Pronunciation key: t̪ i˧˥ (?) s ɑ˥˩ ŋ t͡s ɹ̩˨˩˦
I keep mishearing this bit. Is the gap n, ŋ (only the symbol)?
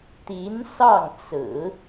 n